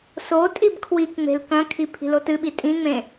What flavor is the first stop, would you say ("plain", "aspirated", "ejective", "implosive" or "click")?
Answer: ejective